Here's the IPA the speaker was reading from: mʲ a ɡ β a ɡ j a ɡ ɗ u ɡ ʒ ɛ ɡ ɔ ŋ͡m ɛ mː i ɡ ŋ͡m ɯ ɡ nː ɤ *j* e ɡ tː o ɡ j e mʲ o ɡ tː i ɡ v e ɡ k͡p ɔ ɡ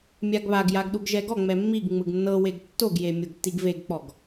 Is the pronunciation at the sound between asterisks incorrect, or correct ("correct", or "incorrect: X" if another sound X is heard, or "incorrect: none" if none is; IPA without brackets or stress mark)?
incorrect: w